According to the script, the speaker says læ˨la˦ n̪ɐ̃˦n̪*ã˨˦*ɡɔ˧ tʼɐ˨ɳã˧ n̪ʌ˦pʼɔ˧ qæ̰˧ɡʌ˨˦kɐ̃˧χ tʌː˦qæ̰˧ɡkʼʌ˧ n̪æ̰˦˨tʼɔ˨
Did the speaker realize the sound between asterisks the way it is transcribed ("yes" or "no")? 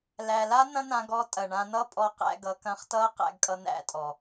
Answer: no